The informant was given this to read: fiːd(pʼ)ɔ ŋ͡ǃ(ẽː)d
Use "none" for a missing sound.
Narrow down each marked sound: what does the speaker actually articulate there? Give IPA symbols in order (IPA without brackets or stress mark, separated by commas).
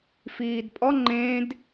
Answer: pʼ, ẽː